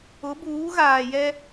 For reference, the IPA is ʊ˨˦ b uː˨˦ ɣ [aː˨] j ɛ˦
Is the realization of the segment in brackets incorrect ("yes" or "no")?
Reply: no